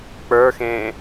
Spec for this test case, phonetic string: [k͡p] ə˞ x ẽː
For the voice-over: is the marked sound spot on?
yes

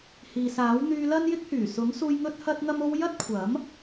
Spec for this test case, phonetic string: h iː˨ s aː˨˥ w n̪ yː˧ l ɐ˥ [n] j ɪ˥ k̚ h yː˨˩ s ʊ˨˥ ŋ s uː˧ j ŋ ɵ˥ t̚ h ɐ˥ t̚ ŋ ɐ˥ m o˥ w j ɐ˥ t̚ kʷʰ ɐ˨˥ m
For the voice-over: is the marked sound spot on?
yes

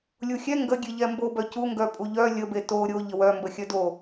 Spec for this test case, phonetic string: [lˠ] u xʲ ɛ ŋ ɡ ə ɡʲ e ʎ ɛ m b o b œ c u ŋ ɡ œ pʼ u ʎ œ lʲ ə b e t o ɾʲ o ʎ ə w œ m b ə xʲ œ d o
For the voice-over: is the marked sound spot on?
no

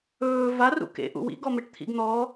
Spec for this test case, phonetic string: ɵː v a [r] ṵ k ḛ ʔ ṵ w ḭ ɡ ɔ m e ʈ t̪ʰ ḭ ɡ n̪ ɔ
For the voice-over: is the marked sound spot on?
yes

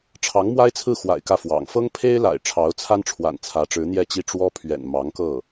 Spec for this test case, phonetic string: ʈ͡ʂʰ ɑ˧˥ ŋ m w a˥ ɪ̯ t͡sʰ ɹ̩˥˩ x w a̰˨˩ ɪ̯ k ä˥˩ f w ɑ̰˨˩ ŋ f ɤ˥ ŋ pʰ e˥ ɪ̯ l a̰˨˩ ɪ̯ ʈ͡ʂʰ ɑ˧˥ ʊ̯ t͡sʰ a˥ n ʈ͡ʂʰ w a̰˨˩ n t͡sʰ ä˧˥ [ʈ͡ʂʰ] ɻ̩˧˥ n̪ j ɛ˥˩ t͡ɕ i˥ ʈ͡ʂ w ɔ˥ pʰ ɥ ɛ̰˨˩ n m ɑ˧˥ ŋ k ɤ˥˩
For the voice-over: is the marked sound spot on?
no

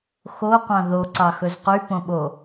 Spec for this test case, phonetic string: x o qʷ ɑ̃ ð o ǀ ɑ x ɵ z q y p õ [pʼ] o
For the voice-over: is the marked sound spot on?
no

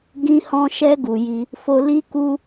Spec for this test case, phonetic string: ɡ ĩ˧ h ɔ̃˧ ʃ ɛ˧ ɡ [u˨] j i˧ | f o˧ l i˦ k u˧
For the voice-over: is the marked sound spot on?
yes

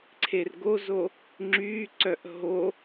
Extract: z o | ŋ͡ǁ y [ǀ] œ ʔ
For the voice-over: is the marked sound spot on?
yes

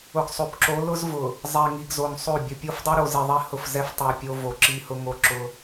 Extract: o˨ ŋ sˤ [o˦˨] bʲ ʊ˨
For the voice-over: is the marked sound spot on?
yes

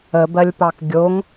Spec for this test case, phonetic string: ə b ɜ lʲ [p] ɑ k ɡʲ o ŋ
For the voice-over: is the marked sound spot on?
yes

